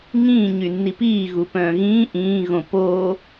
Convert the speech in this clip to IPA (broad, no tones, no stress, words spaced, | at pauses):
ŋĩː ɲynːipiː ɣupœ̃ːɣĩː ʔĩː ɣõpo